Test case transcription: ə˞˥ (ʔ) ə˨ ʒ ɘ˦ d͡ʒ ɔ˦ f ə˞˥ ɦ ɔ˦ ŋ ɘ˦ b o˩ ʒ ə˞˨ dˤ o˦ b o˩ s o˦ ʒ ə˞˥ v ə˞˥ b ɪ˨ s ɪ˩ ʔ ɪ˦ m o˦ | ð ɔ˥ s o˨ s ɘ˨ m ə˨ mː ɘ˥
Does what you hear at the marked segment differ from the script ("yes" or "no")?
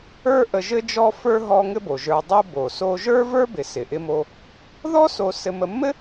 no